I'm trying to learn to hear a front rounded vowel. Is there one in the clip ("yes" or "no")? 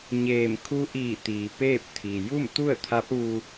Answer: no